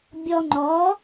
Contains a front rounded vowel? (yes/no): no